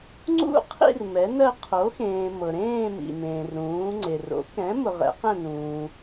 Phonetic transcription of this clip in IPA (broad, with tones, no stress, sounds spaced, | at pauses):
ŋ͡ǀ ṵ˥˧ qʰ ḭ˥˧ r m ɛ˨˥ n ɜ˥˧ qʰ o˨˥ x ẽː˨ m ɤ˨ ɾ ẽː˥˧ m ḭ˨ m ẽː˨ r ɾ ũː˨˥ ŋ͡ǀ e˨ r o̰˨˥ k ɛ̃˨˥ m ʊ˨ ʁ ɛ̰˨˥ q ɛ̃˥˧ n ũː˨